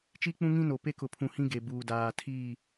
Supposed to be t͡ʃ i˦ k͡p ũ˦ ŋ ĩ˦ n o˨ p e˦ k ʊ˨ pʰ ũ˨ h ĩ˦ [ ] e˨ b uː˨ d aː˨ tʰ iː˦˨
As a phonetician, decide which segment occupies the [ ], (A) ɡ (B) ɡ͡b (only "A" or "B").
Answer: A